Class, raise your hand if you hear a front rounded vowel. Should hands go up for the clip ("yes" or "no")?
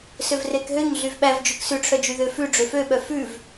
yes